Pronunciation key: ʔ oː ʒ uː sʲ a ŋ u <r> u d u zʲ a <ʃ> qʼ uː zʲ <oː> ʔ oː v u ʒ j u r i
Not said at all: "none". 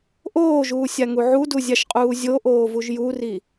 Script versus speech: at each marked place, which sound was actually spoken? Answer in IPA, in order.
ʕ, ʃ, o

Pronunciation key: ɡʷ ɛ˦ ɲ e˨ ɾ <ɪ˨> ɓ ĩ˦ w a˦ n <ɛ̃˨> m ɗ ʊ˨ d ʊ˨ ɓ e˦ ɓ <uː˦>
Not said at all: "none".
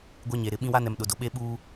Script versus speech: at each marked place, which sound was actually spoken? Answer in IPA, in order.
ɪ˨, ɛ˨, uː˦

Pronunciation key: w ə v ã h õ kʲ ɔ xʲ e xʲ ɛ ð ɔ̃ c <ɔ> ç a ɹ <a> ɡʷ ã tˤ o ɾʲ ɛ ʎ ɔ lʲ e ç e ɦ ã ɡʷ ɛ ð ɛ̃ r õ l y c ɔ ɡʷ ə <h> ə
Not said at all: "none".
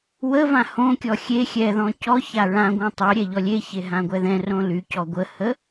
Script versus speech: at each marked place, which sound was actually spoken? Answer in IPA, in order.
ɔ, ã, h

